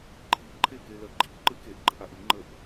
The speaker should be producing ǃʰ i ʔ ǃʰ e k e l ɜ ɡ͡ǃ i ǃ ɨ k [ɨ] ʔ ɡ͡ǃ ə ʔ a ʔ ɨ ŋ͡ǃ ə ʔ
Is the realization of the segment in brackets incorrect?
yes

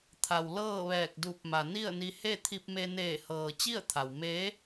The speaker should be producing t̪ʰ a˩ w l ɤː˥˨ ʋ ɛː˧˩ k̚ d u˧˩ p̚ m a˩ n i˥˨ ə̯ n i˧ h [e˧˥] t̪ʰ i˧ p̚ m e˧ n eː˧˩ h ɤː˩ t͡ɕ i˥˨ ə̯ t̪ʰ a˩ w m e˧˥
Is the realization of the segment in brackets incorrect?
yes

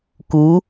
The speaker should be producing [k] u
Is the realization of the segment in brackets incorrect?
no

